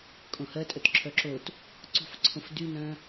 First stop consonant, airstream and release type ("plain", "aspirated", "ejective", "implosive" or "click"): ejective